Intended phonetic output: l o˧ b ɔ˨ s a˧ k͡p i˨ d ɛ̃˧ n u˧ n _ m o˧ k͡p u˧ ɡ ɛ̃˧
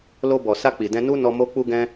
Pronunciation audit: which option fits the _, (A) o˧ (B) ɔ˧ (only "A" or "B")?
B